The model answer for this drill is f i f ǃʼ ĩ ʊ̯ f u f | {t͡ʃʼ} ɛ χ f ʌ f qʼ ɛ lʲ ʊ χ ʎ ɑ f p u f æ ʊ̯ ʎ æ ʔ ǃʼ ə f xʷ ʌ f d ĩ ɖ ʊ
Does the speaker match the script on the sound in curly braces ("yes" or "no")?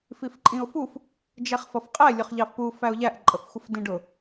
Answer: no